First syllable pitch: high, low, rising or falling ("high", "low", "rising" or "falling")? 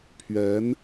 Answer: rising